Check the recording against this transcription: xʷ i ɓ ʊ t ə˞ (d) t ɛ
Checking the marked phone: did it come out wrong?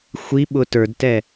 no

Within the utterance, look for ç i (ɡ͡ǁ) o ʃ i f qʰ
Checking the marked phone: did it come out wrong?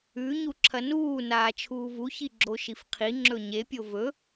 no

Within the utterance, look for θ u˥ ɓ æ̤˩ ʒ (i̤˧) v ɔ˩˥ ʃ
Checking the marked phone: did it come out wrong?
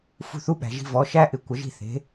no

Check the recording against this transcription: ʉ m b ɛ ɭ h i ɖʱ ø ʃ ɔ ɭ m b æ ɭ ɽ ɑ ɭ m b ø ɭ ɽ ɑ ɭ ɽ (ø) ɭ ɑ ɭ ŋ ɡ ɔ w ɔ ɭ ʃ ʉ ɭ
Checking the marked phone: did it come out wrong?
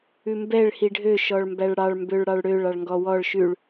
no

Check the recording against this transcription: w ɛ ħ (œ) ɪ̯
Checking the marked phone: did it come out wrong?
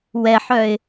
no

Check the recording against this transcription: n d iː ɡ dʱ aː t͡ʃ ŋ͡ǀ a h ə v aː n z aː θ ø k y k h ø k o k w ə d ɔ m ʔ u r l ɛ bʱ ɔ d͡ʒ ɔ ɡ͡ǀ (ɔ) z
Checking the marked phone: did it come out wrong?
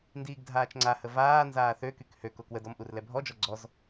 no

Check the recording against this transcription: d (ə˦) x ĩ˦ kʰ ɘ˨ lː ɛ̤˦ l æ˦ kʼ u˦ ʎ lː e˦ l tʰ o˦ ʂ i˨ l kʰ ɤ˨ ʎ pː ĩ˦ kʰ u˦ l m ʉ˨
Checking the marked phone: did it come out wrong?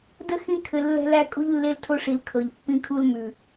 no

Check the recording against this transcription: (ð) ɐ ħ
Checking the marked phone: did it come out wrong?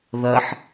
no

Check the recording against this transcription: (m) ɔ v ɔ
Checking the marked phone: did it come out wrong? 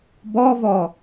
yes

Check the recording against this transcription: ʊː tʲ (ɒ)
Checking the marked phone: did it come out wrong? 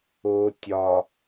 no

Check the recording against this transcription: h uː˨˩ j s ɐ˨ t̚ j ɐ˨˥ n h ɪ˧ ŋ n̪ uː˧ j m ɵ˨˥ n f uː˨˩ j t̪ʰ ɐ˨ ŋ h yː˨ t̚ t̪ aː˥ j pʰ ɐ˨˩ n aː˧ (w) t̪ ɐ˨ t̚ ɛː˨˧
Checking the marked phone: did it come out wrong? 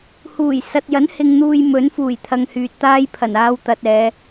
no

